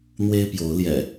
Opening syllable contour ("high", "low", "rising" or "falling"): high